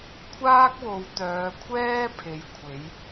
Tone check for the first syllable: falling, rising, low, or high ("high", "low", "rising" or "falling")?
high